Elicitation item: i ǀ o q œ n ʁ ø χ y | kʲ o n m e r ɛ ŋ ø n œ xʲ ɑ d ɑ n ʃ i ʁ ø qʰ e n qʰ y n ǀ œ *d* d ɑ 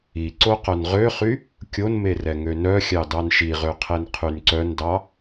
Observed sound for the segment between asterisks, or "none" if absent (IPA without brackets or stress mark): n